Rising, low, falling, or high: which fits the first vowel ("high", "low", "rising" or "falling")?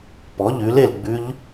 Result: rising